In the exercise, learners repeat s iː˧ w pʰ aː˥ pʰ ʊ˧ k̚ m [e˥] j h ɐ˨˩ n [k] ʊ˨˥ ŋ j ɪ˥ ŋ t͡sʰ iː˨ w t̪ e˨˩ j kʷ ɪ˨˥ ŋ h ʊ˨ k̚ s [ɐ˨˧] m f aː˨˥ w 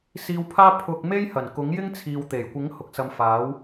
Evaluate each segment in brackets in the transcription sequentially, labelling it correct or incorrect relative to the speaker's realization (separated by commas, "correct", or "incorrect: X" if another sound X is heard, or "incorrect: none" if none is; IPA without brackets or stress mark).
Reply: correct, correct, correct